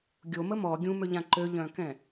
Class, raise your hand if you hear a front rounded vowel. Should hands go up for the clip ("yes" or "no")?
yes